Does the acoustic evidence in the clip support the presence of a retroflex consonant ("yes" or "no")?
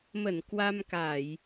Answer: no